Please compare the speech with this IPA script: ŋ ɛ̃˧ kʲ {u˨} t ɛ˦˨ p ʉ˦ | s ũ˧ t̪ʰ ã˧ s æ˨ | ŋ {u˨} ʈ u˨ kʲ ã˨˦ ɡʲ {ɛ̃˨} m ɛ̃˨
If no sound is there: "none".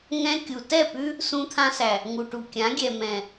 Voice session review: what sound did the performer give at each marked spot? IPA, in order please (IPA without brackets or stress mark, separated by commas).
u˨, u˨, ɛ˨